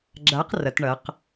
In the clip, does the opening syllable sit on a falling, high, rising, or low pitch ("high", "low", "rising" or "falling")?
rising